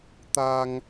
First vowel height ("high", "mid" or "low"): low